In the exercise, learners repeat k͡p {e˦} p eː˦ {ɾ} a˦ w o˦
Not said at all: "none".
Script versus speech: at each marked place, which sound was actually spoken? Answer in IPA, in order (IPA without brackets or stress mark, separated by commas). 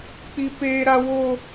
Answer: i˦, ɾ